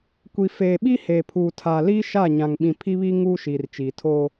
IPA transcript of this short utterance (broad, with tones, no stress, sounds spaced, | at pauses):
kʷ i˨ f eː˨ ɓ i˦ h eː˨ pʰ uː˨ tʰ aː˨ l iː˦ ʃ a˦˨ ɲ ã˨ ŋ ɓ ĩ˨ pʰ i˦ β i˦ ŋ uː˦ ʃ iː˨ r t͡ʃ iː˨ tʰ oː˦